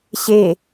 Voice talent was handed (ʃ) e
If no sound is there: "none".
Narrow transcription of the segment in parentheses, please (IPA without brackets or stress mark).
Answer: ɕ